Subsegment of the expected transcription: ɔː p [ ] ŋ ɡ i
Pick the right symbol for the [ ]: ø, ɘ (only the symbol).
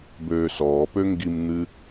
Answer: ø